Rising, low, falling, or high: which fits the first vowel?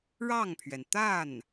falling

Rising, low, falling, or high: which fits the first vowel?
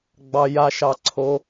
low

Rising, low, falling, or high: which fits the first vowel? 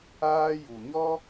high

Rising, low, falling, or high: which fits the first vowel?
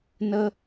high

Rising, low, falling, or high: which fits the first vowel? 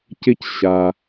high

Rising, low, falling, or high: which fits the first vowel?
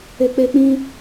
high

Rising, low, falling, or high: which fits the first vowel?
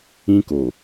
high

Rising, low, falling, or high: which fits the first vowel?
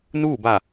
falling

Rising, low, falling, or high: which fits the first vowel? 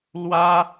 high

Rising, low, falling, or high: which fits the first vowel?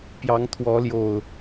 rising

